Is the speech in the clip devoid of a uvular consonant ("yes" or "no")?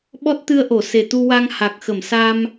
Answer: yes